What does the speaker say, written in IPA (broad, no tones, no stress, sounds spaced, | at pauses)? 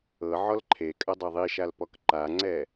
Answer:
ɤ ʕ ɔ l ǃʰ e kʼ ɐ dˤ ɛ ðˤ i ʃ a l p ɔ k ǃ a ŋ͡ǀ ɛ